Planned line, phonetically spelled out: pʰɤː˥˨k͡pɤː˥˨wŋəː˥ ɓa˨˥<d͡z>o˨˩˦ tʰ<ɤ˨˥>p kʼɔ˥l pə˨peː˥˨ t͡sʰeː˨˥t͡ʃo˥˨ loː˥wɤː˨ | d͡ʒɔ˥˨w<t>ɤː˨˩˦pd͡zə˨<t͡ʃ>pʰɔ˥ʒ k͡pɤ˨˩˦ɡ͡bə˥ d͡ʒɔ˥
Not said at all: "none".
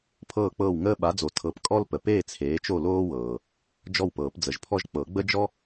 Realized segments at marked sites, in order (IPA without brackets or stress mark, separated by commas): d͡z, ɤ˨˥, p, ʒ